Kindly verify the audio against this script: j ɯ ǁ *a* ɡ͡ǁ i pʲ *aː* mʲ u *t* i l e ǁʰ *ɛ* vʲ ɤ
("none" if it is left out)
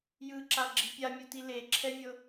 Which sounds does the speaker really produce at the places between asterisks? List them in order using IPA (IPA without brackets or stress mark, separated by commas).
a, a, t, ɛ